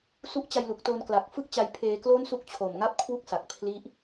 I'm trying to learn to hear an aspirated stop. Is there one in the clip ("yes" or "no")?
yes